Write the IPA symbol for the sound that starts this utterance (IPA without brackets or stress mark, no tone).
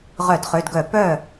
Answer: ʁ